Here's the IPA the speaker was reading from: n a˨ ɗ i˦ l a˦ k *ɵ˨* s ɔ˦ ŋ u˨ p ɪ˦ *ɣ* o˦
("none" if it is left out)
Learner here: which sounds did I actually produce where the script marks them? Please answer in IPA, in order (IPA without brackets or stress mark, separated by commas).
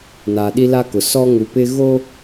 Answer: ʊ˨, ɣ